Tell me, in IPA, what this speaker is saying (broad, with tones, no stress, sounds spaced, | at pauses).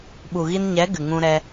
ɓ u˨ ɣ i˧ n ɲ ɛ˨˦ ɡ ɨ˨ ŋ ũ˧ ɾ ɛ˧